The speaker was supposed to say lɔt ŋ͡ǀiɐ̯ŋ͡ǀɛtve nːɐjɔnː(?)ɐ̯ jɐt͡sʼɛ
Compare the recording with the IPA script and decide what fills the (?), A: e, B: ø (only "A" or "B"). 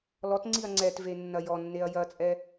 A